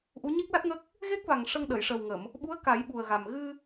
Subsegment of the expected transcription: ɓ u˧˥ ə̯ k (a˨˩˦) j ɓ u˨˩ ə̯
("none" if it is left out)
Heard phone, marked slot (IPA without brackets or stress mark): a˨˩˦